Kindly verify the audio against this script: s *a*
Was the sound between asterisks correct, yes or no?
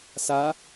yes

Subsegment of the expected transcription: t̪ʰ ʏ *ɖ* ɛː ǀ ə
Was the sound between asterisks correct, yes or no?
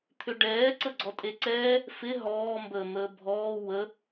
yes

